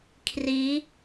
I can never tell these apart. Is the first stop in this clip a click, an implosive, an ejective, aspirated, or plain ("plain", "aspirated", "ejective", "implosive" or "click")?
aspirated